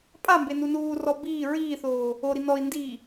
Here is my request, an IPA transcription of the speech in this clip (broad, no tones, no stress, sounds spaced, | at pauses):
pʼ a m b e n u n uː r ɔ b iː ɹ iː θ oː | o ɾ i n ɔ i̯ n d iː